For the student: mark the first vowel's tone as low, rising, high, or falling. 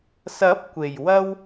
rising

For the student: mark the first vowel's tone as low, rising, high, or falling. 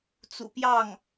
low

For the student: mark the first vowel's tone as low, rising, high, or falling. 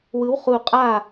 rising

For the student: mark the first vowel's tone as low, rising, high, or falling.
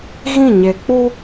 falling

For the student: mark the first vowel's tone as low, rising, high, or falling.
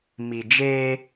low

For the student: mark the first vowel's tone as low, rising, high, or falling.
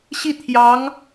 falling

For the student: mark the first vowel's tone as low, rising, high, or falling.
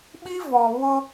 high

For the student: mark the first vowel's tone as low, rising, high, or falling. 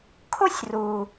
high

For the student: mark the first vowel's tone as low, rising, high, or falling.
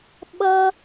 high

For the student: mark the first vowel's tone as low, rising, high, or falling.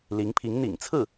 rising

